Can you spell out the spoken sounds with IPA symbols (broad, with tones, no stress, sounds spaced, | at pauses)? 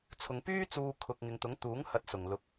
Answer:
t͡sʰ ʊ˨˧ ŋ p yː˥ t͡s uː˧ kʰ ʊ˧ k̚ ŋ ɪ˨ ŋ t̪ ʊ˨˥ ŋ t̪ uː˨˥ ŋ h ɐ˨˥ t̚ s ʊ˨ ŋ l ʊ˨˥ k̚